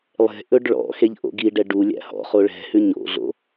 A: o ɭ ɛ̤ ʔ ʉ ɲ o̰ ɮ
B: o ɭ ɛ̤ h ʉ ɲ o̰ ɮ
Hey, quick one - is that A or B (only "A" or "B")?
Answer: B